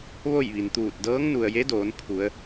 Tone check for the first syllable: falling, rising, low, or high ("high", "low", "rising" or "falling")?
falling